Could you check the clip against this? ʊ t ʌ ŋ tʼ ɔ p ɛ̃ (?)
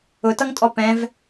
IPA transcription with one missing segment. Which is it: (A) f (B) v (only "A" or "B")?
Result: B